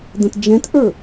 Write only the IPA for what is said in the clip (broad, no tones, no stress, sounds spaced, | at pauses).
d̪ ə̃ t d͡ʒ ɛ̃ t ʔ ə˞